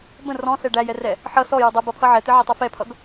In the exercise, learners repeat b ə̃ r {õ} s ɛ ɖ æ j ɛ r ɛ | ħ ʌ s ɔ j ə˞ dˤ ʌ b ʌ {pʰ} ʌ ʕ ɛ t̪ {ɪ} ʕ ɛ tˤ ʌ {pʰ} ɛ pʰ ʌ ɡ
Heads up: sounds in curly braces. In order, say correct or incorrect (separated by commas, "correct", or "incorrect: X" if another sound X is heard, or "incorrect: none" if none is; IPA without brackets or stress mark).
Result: incorrect: ɔ̃, correct, correct, incorrect: f